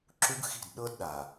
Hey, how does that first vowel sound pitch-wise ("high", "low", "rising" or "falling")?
high